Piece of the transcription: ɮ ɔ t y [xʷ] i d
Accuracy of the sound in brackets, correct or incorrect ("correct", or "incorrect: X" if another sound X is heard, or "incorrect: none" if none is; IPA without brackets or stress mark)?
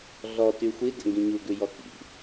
correct